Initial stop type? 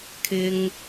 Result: aspirated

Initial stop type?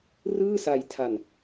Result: aspirated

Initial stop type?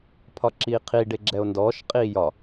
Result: aspirated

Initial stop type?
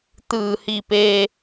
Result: plain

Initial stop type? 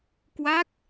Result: plain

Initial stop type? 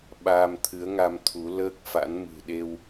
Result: implosive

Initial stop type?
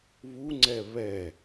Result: click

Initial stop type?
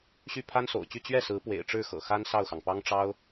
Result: aspirated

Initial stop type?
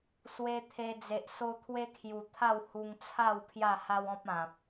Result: aspirated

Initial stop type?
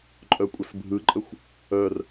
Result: click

